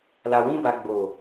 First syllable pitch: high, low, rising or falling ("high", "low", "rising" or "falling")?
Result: low